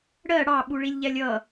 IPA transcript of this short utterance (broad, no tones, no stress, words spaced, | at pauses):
ɽɜ ɽɑ ɓuɭilʲʎɛlʲʌ